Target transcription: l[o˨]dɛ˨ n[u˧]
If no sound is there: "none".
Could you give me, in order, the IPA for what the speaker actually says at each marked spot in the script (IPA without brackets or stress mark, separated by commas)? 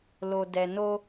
o˨, o˧